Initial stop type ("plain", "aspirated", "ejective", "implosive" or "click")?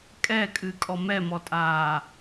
ejective